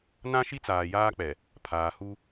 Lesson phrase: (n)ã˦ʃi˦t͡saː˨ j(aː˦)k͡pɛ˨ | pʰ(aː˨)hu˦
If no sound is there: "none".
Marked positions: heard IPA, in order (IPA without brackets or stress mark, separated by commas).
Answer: n, aː˦, aː˨